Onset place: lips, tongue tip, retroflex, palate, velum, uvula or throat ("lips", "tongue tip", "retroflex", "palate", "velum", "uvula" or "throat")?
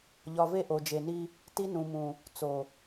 palate